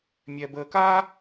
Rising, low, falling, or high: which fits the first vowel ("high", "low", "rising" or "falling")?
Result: low